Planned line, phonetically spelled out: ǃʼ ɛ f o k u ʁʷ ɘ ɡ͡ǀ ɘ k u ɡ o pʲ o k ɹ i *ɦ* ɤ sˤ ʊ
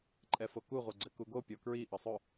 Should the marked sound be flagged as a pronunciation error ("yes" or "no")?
yes